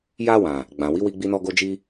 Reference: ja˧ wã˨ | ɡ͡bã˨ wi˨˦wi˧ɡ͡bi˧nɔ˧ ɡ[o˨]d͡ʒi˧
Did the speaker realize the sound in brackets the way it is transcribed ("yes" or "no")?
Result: no